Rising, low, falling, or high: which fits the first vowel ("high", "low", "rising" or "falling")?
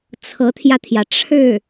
rising